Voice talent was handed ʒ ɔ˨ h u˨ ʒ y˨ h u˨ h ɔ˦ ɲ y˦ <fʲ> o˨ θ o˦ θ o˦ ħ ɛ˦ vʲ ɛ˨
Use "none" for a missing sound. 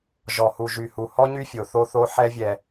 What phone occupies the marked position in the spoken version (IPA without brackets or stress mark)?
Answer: fʲ